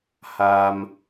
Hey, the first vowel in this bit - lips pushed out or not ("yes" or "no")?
no